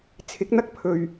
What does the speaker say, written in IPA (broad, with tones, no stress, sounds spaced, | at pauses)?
t͡sʰ ɪ˨˥ k̚ n̪ ɐ˥ k̚ pʰ ɵ˨ ɥ